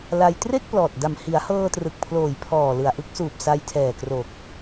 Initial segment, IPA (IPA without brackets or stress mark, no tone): l